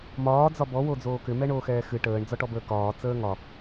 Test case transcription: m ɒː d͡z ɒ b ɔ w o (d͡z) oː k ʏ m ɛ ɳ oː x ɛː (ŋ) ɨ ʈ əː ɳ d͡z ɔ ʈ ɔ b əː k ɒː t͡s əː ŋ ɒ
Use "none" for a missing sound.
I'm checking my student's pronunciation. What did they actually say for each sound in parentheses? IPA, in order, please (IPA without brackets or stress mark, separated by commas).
d͡z, x